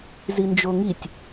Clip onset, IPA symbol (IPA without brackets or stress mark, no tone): z